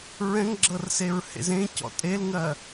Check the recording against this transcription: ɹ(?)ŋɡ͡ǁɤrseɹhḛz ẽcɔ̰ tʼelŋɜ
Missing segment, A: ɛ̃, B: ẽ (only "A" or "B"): A